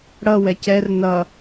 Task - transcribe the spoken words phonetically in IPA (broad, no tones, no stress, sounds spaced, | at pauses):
ɽ ʌ w ɛ c ɛ r n ʌ